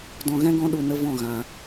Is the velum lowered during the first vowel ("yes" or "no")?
yes